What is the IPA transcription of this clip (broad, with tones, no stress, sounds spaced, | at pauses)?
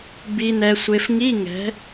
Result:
b i˦˥ n ɛ˦˥ sʷ e˦˥ f ŋ i˧˥˧ ŋ ɛ̤˨˦